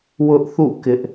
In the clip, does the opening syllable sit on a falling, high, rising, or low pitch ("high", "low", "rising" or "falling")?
high